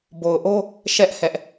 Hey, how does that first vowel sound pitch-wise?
low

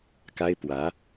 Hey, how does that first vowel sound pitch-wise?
high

